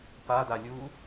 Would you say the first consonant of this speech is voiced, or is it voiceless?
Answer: voiceless